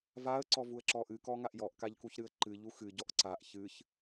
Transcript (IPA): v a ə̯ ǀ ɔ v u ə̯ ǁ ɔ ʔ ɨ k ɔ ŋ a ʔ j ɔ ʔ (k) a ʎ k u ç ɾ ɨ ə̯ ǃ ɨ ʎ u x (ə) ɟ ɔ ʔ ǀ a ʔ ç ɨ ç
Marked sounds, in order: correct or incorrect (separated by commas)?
correct, incorrect